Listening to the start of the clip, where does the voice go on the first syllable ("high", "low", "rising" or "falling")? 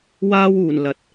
high